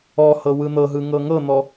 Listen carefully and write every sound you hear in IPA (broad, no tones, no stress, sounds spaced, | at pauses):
ɔ h ɤ w ɯ n̪ ɤ ɦ ɯ ŋ ɤ ŋ ɤ n̪ ɔ